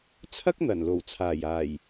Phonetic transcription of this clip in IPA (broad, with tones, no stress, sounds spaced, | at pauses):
t͡sʰ ɐ˥ k̚ n̪ ɐ˨˩ n l o˨˩ w t͡sʰ aː˨˩ j aː˨˩ j